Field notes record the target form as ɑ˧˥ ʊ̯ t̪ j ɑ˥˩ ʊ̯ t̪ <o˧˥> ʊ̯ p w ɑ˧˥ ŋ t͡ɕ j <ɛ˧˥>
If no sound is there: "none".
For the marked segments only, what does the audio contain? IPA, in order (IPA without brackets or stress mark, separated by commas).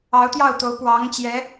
o˧˥, ɛ˧˥